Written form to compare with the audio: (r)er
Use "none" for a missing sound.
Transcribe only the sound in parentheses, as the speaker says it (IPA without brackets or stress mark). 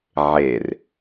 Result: ʕ